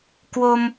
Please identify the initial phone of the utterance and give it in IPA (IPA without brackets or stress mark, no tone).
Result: k